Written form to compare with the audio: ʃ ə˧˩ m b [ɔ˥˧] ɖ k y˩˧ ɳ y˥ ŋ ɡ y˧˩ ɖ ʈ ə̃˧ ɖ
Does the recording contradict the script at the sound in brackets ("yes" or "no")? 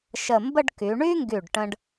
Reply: yes